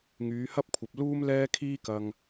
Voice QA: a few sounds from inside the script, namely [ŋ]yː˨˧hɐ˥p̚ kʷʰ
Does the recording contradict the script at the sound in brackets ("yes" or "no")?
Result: no